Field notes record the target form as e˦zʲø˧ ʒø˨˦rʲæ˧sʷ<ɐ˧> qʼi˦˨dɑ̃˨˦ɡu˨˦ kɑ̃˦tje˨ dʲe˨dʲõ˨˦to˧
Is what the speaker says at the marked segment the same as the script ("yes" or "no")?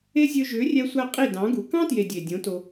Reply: no